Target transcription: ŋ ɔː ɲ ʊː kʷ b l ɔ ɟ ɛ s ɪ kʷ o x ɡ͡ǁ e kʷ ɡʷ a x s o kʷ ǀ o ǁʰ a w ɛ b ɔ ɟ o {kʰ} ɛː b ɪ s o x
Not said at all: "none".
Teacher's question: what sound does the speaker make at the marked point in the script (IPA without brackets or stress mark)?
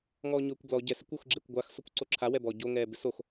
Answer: ŋ